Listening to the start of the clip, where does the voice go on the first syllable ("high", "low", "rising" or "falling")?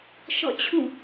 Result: falling